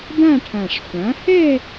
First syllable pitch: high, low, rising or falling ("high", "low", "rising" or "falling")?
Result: falling